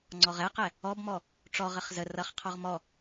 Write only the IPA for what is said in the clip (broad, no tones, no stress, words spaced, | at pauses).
ŋ͡ǀɔʁɛqɛ | ɔbmɔ | ʈ͡ʂɔʁəχ zə rʌχqʰɔʁ mɔ